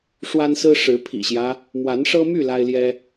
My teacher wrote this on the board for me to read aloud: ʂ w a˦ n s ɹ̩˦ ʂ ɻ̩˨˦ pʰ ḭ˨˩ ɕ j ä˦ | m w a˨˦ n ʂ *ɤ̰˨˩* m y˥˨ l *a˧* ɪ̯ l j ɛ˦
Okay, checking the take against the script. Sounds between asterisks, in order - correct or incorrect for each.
incorrect: ɤ˦, incorrect: a˦

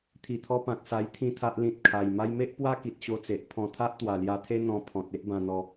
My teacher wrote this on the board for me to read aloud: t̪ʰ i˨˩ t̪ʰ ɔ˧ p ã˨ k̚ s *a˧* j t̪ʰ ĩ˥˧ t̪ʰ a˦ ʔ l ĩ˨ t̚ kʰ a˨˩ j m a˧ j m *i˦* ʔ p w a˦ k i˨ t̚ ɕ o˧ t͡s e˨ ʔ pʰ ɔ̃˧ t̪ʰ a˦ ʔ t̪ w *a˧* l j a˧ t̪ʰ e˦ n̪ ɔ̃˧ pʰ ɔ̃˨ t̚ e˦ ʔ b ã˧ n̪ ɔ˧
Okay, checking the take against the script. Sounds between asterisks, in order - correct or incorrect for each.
correct, incorrect: e˦, incorrect: a˨˩

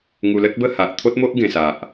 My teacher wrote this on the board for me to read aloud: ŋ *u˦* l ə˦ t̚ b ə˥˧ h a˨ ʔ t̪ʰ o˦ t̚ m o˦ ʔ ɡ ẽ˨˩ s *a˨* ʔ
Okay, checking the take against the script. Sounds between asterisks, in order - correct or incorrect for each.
incorrect: u˧, correct

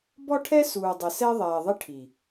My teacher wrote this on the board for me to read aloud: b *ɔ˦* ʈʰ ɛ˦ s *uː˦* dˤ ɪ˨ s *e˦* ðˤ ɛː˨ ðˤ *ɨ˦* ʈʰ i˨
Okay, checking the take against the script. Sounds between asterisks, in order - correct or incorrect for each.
correct, incorrect: uː˨, incorrect: ɛ˦, incorrect: ɪ˦

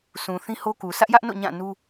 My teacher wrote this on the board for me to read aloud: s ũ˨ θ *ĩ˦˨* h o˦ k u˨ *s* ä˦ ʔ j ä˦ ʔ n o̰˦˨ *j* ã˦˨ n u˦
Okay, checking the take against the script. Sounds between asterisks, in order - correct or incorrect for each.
incorrect: ĩ˦, correct, incorrect: ɲ

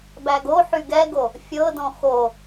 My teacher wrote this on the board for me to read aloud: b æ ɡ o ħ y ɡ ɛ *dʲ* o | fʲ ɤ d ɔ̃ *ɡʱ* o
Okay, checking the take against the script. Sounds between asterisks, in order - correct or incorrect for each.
incorrect: ɡ, incorrect: x

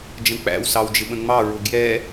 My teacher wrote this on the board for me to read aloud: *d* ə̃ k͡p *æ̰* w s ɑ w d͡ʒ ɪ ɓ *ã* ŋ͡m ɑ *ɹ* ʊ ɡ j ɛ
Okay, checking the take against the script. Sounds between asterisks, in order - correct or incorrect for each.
incorrect: d͡ʒ, correct, incorrect: ə̃, correct

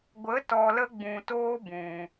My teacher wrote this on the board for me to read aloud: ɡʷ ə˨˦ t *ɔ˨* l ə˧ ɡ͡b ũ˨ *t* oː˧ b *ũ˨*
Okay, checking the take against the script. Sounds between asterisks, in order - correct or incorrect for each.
correct, correct, correct

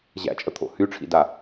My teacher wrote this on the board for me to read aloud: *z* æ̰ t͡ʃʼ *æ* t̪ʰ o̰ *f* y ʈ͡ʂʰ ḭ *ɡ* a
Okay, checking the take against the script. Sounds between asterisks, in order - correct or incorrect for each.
incorrect: ʑ, incorrect: ə, incorrect: h, incorrect: d

